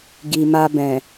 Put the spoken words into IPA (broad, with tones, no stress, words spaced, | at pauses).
ɡi˨ma˧bɛ̃˨